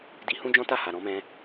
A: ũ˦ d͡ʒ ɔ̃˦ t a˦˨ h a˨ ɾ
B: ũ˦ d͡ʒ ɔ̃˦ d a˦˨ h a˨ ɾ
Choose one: A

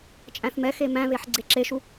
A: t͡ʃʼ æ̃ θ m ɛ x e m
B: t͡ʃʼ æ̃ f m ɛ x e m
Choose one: A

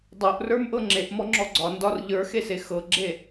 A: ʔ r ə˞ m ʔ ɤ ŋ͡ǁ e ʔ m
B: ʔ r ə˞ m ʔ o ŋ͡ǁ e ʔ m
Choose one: A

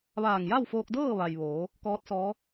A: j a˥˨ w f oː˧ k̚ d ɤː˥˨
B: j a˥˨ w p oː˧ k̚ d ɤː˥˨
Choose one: A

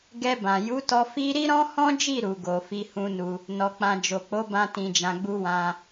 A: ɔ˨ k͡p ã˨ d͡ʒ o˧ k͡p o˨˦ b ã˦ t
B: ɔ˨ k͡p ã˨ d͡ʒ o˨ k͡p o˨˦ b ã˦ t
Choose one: B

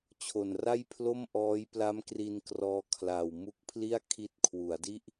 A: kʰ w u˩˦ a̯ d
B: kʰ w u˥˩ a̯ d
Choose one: A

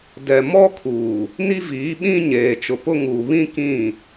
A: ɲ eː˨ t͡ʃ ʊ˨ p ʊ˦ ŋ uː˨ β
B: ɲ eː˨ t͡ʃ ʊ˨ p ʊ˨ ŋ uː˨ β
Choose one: A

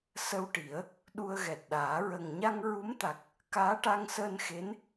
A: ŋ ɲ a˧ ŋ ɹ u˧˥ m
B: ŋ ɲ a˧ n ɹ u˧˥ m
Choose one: A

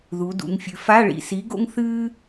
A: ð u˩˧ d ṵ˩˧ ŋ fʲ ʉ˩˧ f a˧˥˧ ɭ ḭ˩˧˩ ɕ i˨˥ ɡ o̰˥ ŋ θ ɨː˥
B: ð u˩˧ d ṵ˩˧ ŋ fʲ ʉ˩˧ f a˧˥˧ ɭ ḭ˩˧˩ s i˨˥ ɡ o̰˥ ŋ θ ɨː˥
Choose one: B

